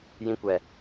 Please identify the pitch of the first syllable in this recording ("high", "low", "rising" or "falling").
high